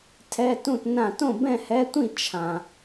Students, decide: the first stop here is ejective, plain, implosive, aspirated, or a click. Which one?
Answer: aspirated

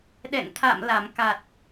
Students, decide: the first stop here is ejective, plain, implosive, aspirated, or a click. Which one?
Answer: implosive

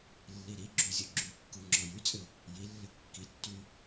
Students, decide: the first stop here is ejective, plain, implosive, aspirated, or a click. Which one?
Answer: click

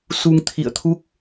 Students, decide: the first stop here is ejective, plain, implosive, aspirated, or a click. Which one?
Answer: aspirated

